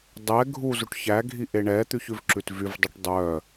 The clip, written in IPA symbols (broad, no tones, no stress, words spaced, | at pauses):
dˤɛ ɡʱuzuʈ çæɡʱi ʔeɳɛt̪ʉç ʉvǁʉtvyvdˤʉʈ dˤœ